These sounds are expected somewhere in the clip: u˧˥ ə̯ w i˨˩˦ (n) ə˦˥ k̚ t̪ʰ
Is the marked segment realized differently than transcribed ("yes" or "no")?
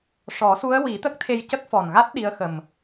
yes